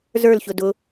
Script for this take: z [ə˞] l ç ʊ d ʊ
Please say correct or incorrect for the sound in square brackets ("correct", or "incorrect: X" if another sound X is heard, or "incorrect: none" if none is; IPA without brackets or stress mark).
correct